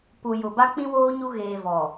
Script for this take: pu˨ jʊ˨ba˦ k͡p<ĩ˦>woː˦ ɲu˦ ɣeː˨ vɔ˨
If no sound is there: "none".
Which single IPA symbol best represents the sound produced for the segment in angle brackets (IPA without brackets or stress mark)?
ĩ˦